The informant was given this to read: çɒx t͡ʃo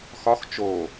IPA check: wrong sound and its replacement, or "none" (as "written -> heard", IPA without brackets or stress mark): ç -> x